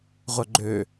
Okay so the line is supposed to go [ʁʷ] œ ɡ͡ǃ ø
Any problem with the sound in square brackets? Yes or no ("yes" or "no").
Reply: no